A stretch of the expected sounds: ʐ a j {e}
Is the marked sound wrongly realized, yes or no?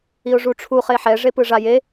no